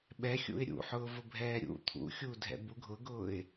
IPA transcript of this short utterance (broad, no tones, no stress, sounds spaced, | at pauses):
ɓ ɛ xʲ ṵ ɪ̯ ɾʲ ṵ ħ ʊː v ʊ bʱ ɛː ɾʲ ṵ t̪ʰ ṵ xʲ uː dʱ ɛ̰ b u ɡʱ ʊ ɡ ʊː ɪ̯